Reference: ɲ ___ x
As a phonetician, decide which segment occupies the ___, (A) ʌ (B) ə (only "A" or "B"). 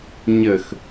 B